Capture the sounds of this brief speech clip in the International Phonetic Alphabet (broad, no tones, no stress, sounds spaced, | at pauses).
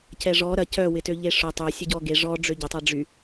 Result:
c ɛ ʐ ɔ ɾ ɐ c œ w ɪ t ø ʎ e ʂ ʊ tˤ ø sʲ ʊ ɟ ɔ ɡ e ʐ ɔ ɖ͡ʐ ø ɟ ɪ tˤ ɛ ɖ͡ʐ y